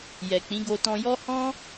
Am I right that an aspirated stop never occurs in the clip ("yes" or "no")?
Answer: yes